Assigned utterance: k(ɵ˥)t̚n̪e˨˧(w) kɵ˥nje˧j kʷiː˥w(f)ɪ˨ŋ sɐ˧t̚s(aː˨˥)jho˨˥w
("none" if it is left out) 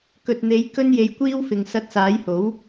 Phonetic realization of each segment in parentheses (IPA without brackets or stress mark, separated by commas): ɵ˨, j, f, aː˨˥